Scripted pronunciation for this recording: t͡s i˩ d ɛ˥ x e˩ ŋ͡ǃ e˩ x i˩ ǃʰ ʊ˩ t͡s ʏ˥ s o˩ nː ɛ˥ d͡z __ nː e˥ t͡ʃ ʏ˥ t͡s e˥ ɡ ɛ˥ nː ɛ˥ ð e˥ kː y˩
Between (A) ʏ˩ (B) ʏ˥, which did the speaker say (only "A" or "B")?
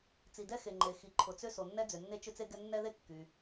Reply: A